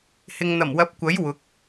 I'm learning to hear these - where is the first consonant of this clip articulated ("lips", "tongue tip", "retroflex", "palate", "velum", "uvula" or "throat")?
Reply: throat